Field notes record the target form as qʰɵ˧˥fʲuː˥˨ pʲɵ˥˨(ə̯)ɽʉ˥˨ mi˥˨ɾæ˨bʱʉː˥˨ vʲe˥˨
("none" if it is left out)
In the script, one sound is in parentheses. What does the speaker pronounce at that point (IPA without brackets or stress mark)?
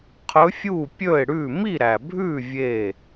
ɪ̯